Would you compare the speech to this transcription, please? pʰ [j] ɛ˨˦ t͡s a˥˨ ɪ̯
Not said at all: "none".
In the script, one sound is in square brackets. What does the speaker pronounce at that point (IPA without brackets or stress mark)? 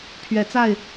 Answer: ɥ